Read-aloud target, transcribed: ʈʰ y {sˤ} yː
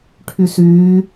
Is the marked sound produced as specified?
no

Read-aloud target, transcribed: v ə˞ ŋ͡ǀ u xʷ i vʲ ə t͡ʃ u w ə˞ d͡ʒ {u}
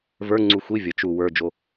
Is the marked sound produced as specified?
no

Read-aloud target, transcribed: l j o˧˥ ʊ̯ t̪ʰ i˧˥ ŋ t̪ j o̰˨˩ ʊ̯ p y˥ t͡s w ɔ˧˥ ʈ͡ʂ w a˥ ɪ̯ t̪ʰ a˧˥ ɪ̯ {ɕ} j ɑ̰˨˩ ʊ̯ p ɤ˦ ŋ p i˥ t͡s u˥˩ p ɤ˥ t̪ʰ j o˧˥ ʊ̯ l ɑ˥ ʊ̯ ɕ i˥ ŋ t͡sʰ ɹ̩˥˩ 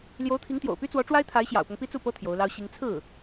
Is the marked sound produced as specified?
yes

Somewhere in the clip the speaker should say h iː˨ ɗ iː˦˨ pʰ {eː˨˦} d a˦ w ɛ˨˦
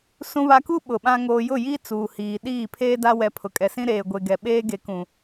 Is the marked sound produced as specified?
no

